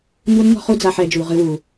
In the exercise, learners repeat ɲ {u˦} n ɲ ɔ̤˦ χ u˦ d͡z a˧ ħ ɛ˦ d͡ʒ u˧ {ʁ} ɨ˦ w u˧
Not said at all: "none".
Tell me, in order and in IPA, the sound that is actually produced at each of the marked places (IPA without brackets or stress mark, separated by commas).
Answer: u˦, ʁ